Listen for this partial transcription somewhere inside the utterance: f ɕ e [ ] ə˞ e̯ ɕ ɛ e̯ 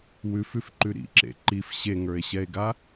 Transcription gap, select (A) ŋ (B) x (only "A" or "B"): A